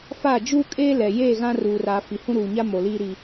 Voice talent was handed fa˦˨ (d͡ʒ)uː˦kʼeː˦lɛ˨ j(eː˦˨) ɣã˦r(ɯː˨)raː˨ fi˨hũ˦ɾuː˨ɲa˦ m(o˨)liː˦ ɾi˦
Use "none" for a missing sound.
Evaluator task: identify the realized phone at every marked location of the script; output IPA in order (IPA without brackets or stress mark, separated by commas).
d͡ʒ, eː˦˨, uː˨, o˨